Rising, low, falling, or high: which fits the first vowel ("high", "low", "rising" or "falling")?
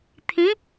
rising